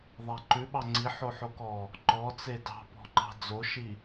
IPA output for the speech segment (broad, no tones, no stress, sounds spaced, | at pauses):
ðˤ æ ǃ ʉ ɓ ɑ ŋ͡ǀ i ħ o ħ o k ɔ | ǃ ɔ t͡s e d ɑ̤ p ɔ̤ ǃ ɑ̤ d͡z o ʃ i